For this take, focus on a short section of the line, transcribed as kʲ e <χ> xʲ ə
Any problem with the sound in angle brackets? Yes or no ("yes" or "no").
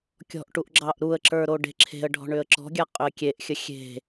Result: yes